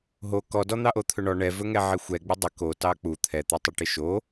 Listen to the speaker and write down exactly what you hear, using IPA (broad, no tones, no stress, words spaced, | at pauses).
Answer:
ɦo kɔdɔ n̪ɑʔot̪ʰɵɳɔ ɳɛvɵ ŋɛʕɪxʷɛ ɡ͡bɪdˤɪ ko tɑk͡pu t̪ʰɛt̪ɛtˤoʈɪ ʃo